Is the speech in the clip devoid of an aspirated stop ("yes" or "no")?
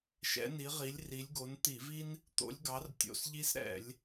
yes